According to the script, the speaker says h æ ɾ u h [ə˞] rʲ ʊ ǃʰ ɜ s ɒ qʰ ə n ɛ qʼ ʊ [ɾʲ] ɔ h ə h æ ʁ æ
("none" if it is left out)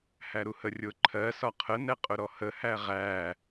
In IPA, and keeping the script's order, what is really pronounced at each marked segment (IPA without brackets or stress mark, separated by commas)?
ə, ɾ